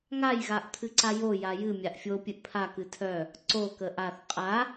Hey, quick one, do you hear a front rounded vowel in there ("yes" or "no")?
yes